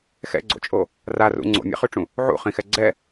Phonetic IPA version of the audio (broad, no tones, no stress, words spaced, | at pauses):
xɛ̰ɡ͡ǀo̰t͡ʃʼo | rarṵ ŋ͡ǀo̰mʲɛ̰χyʈ͡ʂũ | ʕṵχĩxɛ ɡ͡ǀɛ